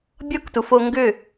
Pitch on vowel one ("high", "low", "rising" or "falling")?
high